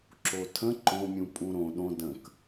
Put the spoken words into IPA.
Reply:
ǁotʰə̃ ǃõmʲũ pʼũɾõ ɗõ də̃k

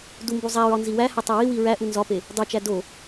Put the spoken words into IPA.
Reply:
dumbuzˤæɹɒ nziwæhætˤ ewiwi ɹæʔu nzɒpe | dˤut͡ʃæ do

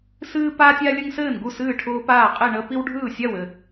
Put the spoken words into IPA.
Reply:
sɨː˦paː˦tʲa˦ lʲə˦ŋsɘː˥˩nɡu˥˩s ɨː˥˩ʈʰʊː˦paː˥˩qʼi˥˩ ɳə˦ pi˦wɖʱɯː˥˩sʲa˥˩wɘ˥˩

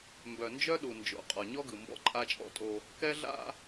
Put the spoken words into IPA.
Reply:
mbœ˨nd͡ʒœ˦ɗu˨nd͡ʒo̰˨˦ qʼɒ˨ɲɔ˦ɡɯ˨ mbɔ̰˦ǃʼa˦t͡ʃʼɔ̰˦tʼo˦ | kɛ˦ ɮa̰˦

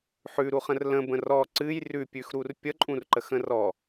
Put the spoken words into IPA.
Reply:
ħʉɾuχə̃r lə̃bə̃ rɔ ǀɨj rʉpʲʉxɾur pʲəǃʼũrǃəxə̃ rɔ

